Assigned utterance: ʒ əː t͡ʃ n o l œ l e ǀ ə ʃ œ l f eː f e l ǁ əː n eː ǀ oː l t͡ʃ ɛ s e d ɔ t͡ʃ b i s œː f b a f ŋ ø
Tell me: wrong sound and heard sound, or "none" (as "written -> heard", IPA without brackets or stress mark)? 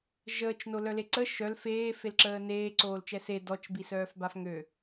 none